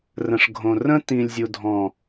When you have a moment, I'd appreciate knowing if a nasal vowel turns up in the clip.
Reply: yes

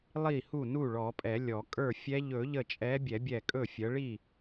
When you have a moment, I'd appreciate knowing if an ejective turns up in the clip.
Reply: yes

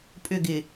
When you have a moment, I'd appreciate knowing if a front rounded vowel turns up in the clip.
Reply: yes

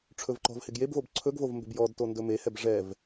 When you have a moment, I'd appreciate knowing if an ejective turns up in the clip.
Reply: no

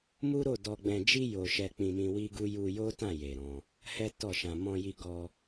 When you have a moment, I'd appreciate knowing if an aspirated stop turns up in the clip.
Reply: no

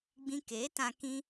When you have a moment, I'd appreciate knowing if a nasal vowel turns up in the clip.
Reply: yes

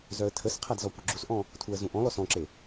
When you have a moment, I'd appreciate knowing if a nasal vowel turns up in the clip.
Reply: yes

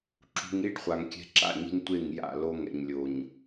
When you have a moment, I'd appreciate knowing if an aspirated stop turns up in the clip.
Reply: no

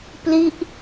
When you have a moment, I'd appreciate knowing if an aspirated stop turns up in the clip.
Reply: no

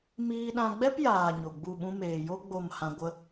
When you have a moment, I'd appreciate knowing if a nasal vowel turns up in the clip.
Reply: yes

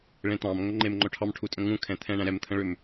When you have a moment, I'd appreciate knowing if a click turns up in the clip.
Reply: yes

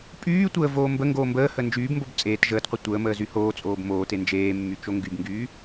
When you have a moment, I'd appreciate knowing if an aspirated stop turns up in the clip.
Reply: no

